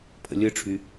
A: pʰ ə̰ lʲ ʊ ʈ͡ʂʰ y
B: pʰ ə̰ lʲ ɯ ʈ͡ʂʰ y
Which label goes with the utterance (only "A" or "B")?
B